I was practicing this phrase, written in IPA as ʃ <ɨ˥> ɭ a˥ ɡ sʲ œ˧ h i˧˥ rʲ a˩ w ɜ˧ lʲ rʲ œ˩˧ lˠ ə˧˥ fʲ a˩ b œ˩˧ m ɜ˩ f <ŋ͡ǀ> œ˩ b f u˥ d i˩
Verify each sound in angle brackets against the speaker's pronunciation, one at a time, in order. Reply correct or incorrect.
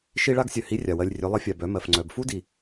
incorrect, correct

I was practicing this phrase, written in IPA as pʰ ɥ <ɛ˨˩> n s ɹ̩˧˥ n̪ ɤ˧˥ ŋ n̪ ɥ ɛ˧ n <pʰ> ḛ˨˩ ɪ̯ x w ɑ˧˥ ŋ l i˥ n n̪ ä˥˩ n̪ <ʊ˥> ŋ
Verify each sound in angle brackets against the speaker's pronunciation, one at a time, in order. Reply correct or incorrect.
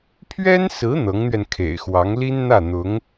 incorrect, incorrect, incorrect

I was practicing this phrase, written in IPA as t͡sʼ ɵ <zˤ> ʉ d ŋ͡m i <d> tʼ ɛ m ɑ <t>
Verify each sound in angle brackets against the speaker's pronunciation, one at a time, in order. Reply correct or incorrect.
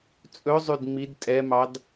correct, correct, incorrect

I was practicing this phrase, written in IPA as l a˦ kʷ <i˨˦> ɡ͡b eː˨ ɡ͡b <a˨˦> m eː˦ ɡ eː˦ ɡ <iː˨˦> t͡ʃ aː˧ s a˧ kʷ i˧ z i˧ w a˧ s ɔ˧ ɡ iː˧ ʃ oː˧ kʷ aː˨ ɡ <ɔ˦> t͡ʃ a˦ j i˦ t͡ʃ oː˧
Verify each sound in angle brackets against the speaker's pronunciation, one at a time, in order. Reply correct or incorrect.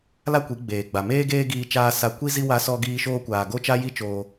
correct, incorrect, incorrect, incorrect

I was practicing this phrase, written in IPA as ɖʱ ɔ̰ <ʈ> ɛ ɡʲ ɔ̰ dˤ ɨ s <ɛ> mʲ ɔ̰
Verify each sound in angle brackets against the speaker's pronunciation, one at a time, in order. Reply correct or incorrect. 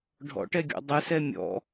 correct, correct

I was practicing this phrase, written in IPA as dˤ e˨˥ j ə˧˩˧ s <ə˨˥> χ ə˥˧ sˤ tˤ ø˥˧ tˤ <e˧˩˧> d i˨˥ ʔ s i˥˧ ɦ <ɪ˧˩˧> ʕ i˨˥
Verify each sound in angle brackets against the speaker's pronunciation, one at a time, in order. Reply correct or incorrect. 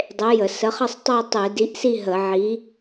correct, correct, incorrect

